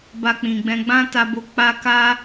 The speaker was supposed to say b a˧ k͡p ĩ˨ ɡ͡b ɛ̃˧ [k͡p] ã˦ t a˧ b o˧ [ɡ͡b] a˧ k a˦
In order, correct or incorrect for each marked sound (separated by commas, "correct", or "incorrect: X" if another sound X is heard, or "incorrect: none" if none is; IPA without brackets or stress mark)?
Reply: incorrect: ɡ͡b, incorrect: k͡p